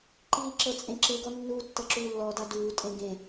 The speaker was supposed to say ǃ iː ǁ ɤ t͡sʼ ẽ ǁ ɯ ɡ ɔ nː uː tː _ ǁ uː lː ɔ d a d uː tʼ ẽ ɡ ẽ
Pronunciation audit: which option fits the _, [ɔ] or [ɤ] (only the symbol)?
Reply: ɤ